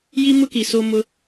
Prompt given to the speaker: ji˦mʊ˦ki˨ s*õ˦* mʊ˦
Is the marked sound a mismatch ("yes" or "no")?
yes